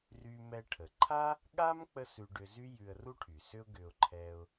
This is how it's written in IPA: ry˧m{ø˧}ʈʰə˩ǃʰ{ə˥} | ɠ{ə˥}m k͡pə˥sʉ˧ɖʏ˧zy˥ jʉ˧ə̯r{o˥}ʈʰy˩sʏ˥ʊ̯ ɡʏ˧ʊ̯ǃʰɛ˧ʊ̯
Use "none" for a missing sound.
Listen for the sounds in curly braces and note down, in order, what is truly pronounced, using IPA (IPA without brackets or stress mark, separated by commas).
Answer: ɛ˧, a˥, a˥, u˥